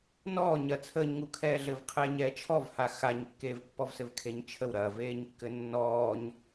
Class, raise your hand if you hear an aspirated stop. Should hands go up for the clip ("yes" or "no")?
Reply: yes